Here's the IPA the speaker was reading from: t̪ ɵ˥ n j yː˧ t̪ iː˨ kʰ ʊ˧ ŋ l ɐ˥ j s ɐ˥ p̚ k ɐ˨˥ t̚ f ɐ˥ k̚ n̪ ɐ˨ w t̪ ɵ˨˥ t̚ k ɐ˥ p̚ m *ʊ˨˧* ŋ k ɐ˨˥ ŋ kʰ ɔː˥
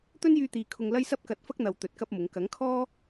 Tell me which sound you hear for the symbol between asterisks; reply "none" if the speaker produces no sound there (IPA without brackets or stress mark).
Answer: ʊ˨˧